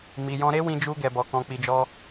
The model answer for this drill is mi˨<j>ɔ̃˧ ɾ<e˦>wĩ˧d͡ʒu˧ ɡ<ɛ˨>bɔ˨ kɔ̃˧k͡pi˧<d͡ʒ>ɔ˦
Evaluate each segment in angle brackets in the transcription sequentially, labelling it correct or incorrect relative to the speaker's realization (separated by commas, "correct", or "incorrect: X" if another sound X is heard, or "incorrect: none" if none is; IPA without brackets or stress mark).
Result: correct, correct, correct, correct